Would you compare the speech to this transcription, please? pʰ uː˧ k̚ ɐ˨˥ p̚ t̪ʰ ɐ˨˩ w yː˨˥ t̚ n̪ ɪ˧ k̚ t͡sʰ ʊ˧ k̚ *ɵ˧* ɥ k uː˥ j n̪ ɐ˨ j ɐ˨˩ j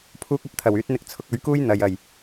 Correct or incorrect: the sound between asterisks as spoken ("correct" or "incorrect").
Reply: incorrect